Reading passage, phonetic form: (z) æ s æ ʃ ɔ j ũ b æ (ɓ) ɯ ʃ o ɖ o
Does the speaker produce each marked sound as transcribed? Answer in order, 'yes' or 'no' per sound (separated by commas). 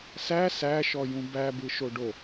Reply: no, no